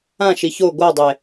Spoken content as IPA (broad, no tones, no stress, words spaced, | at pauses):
ãʃi ço ɡʷadˤe